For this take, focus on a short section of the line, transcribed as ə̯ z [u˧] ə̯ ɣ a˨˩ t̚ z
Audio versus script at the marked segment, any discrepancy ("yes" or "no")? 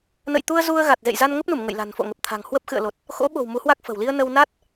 no